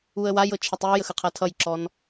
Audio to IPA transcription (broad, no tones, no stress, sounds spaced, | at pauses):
u ə̯ w a j ɤ t͡ʃʰ ə tˤ j u j ə x ə qʰ ʌ tʰ ʌ j ǁ ɔ n